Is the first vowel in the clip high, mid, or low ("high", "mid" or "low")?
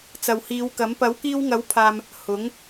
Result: low